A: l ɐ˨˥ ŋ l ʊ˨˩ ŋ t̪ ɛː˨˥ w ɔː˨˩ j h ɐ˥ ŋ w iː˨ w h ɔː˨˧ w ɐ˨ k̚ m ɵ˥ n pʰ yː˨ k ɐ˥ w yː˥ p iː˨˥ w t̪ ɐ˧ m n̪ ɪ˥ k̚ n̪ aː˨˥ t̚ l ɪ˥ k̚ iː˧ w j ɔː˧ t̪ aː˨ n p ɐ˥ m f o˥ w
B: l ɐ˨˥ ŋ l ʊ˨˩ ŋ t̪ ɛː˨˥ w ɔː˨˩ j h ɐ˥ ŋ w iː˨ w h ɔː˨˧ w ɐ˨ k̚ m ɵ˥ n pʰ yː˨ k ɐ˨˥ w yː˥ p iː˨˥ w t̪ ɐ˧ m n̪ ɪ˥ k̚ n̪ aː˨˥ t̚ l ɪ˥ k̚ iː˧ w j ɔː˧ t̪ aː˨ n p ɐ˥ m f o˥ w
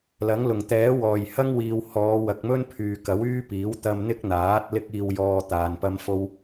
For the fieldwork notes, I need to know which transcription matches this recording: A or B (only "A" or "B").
B